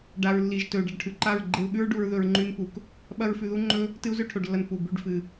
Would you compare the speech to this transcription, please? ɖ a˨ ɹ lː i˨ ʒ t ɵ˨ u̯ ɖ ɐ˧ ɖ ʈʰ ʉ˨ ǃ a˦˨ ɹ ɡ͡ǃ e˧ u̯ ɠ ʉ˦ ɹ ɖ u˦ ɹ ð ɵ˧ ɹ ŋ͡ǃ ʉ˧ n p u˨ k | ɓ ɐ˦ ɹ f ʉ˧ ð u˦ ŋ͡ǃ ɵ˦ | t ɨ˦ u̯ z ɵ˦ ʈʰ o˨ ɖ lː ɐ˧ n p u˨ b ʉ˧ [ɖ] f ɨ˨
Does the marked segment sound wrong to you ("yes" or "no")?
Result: no